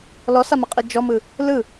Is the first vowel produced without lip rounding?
no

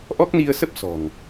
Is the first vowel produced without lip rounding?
no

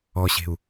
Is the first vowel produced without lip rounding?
no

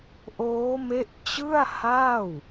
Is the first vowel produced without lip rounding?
no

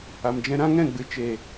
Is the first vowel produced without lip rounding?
yes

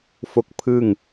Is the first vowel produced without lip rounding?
no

